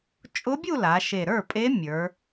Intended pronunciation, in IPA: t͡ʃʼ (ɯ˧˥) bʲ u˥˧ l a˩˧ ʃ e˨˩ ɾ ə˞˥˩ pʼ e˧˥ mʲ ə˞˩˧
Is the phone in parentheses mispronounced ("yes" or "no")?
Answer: yes